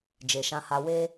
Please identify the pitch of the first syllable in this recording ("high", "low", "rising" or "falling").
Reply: low